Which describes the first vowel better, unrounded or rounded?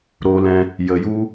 rounded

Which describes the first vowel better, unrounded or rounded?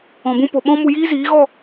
rounded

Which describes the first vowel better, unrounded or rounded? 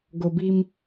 rounded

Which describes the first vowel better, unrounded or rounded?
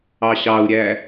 unrounded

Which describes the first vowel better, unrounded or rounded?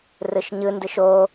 unrounded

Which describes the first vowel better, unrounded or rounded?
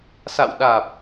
unrounded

